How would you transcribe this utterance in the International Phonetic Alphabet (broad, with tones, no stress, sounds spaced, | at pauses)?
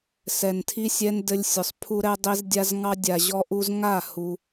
s ɛ˨ n tʰ i˦ sʲ ɛ˦ n d ɘ˦ lʲ sʲ ʊ˨ sˤ pʰ u˦ ɾ ɛ˦ dˤ i˦ z dʲ a˦ z ŋ ɑ˦ dʲ a˨ ʑ ɔ˦ ʔ u˦ z ŋ a˦˨ h u˦